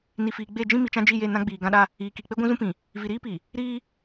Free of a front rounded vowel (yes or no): yes